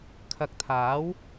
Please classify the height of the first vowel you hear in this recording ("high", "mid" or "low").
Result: low